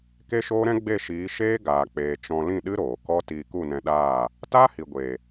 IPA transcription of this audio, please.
k e˦ ʃ oː˦ ɾ ɛ̃˦ ɡ͡b e˦˨ ʃ iː˨˦ ʃ eː˦ ɡ aː˨ k͡p eː˨ t͡ʃ ɔ̃˧ l ĩ˦˨ ɗ ɨ˦ ɾ oː˨ k ɔ˦ t iː˧ k u˦˨ n ɛ̃˧ ɗ aː˦˨ | t aː˦ h i˨ ɡʷ eː˨

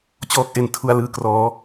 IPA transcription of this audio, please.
t͡ɕ ɔː˦˥ k̚ ʔ e˨˩ n tʰ u˧ a̯ l ɯː˧ k r ɔː˦˥

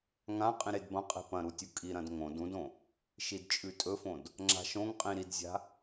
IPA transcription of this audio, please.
ŋ ã qʼ ĩ ɾ e d b ɐ̃ qʼ e̤ p ɐ̃ ɾ u tʲ u kʼ i ɾ ɐ̃ d ŋ õ d ũ d õ | ʃ i d t͡ʃʼ ʉ tʼ ɵ f õ d | ŋ͡ǁ a̤ ʃ õ ŋ qʼ ĩ ɾ i d zʲ a̤

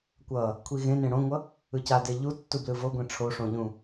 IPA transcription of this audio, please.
kʷ ʌ | kʷʰ i ɣ ẽ n ẽ ɽ õ ŋʷ ʌ | ɯ c a d e ʎ u tː u b l ɯ v o ɡʷ ẽ ʈ͡ʂʰ o ʂ õ ʎ ũ

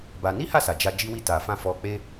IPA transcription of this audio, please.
b a˧ n i˦ h a˦˨ s a˨ d͡ʒ a˧ d͡ʒ i˦ w i˦˨ t a˨ f ã˧ f ɔ˧ k͡p e˦

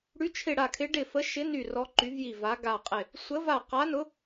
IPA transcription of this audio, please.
ɽ y˧˥ t͡ʃʰ ɪ˦˨ ɽ a˦˨ kʰ ɪ˧˥ ɖ ɪ˦˨ f ə˧˥ ʃ ɪ˧˥ n y˦˨ r ɔ˧˥ ǃ y˧˥ v j i˦˨ v a˧˥ ɡ a˦˨ qʼ ɪ˦˨ | sʷ ə˧˥ v a˦˨ q a˧˥ n ʊ˧˥

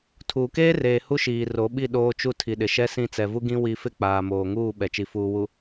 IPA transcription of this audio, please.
tʰ uː˨ k eː˦ r eː˨ h u˦ ʃ iː˨ r o˨˦ ɓ i˦˨ ɗ oː˦ t͡ʃ u˦ tʰ i˨ ɗ ɪ˨ ʃ ɛ˦ s ĩ˦˨ t͡s ɛ˨ v u˦ ɡ ĩ˦ w i˦ f ɪ˦ k͡p aː˨ m oː˨ ŋ uː˦˨ ɓ ɛ˨ t͡ʃ i˨ f uː˨ w u˨

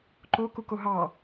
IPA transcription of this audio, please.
ǃ o k u k o ɦ ɑ

